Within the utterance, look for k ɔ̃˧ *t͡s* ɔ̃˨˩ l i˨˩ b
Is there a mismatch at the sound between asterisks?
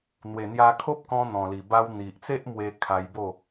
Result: yes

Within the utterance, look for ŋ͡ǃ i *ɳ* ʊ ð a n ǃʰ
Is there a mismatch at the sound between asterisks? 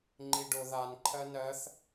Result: yes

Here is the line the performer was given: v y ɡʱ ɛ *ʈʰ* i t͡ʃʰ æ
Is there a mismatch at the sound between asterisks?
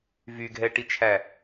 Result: yes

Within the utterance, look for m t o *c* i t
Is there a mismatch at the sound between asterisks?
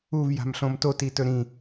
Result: yes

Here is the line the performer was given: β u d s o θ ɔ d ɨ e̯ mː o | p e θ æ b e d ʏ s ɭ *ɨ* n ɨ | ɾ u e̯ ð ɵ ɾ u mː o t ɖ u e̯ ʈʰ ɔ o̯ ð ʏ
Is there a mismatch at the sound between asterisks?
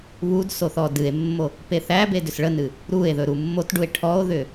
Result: yes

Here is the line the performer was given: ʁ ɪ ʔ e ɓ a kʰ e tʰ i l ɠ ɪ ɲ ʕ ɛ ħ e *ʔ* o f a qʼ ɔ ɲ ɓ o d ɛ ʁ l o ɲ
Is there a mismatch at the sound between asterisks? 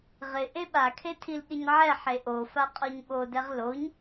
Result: no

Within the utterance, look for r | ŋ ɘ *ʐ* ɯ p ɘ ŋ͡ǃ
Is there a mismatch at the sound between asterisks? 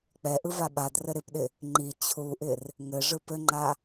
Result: no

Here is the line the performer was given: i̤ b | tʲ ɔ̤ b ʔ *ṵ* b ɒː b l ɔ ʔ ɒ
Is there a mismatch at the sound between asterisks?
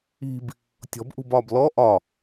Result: yes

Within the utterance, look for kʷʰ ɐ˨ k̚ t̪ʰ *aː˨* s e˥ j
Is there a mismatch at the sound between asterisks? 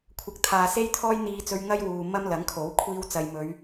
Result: no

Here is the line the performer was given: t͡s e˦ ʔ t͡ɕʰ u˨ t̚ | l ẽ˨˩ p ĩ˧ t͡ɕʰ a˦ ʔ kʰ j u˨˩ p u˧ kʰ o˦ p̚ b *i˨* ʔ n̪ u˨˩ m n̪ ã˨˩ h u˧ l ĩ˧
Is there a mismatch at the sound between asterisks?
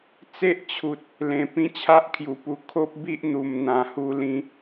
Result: yes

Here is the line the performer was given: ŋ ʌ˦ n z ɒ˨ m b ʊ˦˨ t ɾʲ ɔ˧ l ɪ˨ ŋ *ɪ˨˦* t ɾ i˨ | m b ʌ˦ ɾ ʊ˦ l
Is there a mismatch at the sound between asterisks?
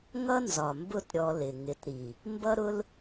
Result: no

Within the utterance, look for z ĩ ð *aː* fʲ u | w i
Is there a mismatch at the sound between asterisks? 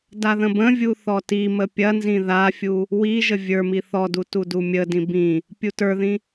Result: yes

